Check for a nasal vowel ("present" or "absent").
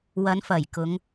absent